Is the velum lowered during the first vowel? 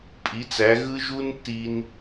no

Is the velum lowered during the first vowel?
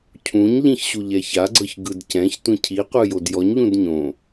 yes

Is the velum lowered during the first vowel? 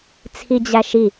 no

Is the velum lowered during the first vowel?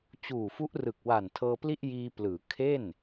no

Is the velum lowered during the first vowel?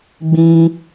yes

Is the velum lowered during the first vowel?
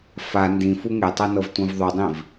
no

